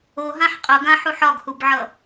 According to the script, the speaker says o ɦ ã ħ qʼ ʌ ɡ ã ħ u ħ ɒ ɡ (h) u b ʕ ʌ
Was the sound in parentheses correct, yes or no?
yes